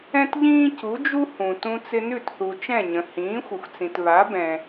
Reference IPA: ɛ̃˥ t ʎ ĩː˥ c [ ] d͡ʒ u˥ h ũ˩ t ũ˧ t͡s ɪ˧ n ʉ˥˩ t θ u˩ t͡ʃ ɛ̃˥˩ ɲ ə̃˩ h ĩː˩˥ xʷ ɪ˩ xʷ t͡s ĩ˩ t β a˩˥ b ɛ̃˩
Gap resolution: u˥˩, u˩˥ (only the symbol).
u˩˥